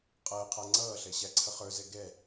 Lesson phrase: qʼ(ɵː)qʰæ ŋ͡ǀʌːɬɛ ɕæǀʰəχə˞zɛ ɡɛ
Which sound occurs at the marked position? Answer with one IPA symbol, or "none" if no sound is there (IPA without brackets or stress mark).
əː